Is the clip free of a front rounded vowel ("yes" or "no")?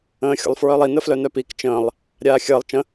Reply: no